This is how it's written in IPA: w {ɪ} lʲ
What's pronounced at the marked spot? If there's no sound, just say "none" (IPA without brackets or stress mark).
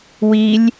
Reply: i